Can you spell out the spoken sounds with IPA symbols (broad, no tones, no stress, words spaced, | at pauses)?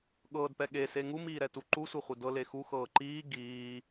ɠɤːdpɛ ɠese ŋumiːɾɛtu ǃusʷɛχʷi dɤle xuxɤː ǃiː ɡiː